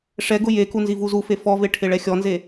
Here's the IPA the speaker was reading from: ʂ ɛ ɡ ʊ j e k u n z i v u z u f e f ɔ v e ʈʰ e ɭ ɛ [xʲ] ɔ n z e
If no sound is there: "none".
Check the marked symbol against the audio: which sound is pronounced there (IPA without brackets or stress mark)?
xʲ